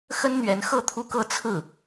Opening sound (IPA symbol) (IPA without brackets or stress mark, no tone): x